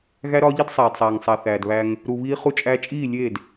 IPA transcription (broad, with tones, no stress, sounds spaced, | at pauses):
ɣ æ˦ ɾ ɒ˦ ʎ i˦ d sˤ æː˨ d sˤ æː˨ ŋ sˤ æ˨ θ æː˨ d β æ˧ ŋ | ɾ u˧ β iː˦ χ u˧ t͡ʃʼ æ˧ t͡ʃʼ iː˦˨ lʲ eː˦˨ d